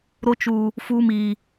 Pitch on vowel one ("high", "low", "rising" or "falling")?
high